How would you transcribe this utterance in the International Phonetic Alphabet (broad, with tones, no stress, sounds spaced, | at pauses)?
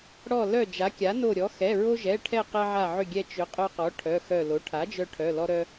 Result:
ɽ ɔ˧˩ l œ˧˩ d͡ʒ a˩˥ kʲ a˩˥ n o˧˩ ɾʲ ɔ˩˥ x ɛ˩˧˩ ɹ o˧ ʒ ɛ˩˧˩ ʈʰ ɛ˧˩ q ɛ˧ ʕ a˧˩ ʕ ʏ˧˩ ɡʲ ɛ˧ t͡ʃ ʏ˩˥ qʼ œ˧ q ɔ˩˥ ʈʰ œ˩˧˩ x œ˧˩ l o˩˥ ʈʰ a˩˥ d͡ʒ œ˧ ʈʰ œ˩˧˩ l ɔ˧ ɾ œ˧